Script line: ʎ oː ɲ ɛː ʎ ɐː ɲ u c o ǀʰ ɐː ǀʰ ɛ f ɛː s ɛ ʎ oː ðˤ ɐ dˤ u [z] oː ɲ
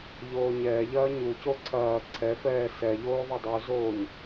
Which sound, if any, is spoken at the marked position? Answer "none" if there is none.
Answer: z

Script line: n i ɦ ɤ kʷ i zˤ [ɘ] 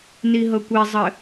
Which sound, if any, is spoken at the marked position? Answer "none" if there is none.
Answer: ɘ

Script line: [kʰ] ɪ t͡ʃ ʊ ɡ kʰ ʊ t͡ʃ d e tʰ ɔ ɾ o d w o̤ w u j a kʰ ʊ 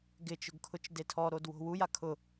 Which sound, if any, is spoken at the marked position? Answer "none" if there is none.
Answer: ɡ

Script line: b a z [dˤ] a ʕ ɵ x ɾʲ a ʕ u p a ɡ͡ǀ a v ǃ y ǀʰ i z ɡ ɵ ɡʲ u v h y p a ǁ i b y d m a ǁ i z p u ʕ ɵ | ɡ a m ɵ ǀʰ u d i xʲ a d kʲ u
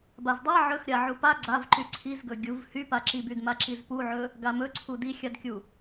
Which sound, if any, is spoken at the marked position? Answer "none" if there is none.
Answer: dˤ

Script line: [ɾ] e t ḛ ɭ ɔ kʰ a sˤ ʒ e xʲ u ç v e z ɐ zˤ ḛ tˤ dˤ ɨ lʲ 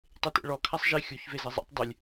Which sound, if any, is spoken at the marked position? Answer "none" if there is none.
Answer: tˤ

